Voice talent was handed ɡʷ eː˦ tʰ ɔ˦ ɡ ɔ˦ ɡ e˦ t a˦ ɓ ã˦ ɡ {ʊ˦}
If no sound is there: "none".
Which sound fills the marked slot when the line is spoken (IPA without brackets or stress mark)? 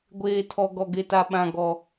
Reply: ɔ˦